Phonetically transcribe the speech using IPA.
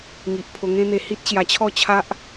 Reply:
ŋi˨ʔpʰo˧ŋẽ˦n̪e˧ hi˦t̚ɕja˧t͡ɕʰɔ˥˧t͡ɕʰa˦ʔ

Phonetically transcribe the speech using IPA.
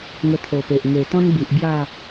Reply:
ŋə˧t̪ʰo˨˩pe˨ʔ ŋe˨˩ t̪ɔ̃˦nbi˨ʔ bja˥˧

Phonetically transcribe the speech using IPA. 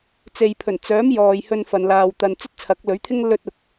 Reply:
t͡se˨j pʰɵ˨˩n t͡sœː˨˥m jɔː˨jhɵ˧n fɐ˨˧nlaː˧wt̪ɐ˧n t͡sɵ˥t̚t͡sʰɐ˨˥k̚lɵ˨˥ɥt̪ʰɪ˥ŋ lɵ˥t̚ ʊ˨k̚

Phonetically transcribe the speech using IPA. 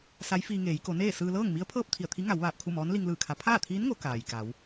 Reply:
sa˧˥jfiː˧ŋeː˩˧j ko˩˧neː˥˨sɯː˧ lɤː˥˨ŋmi˧˥ə̯ pʰɤː˥˨p̚ t̪ʰi˧˩ə̯t̪ʰi˧˥ ŋa˩˧w ʋaː˧˩p̚kʰu˥˨mɔː˧˥n li˧ŋlɯː˧˩kʰa˩˧ pʰaː˥˨t̪ʰiː˧˥n ŋo˩˧ kaː˩jka˩˧w

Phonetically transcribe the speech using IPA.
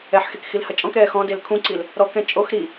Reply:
ɛħxek xilhɐt͡ʃʼɔ̃kɾɛː xɔ̃del kʰũǀil | ɾɔkɛ̃ t͡ʃʼox ɾi

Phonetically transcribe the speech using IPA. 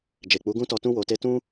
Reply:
d͡ʒe˨k͡pu˨˦ɡũ˦tɔ˧ tũ˧wo˨te˧ tũ˧

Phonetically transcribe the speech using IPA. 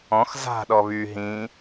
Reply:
ɔ̃x za̤ ɗɔβy ɦĩ

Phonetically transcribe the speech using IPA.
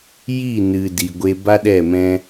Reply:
ji˦˨ nɨ˨ di˧ɡʷe˦ ba˦ɗɛ˦˨mɛ̃˦

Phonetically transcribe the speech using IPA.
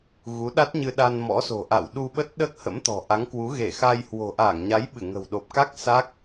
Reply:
ɣu˨˦ɗa˦˥t̚ɲɨ˧ ɗa˧nmɔ̰˧˥so̤˨˩ʔa̰˧˨w ɗu˧ɓə˦˥t̚ ɗəː˦˥k̚hə̰˧˥mt̪ɔ̤˨˩ ʔa˨˦ŋkwu˨˦ ɣe˧˩xa˧j hwo̤˨˩ʔaː˧˩ŋɲa˨˦j ɓɨ˧˩ŋə̤˨˩wɗo˨˩p̚ka˦˥k̚ sa˦˥k̚

